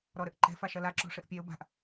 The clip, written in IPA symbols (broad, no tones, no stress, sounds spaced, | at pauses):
ɾ ɔ ɾ ɘ ʔ ǃ ɛ̤ f a ʃ ɐ l a ǁ ɔ̤ ʂ ɘ ʔ pʲ ɛ ʊ̯ b a̤ ʔ